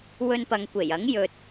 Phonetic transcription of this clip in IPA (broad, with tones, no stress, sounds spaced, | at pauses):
w ɵ˧ n p ɐ˨˧ ŋ kʷ e˨˩ j ɐ˨˥ ŋ j ɵ˨ t̚